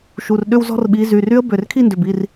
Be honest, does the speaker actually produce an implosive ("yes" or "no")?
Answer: yes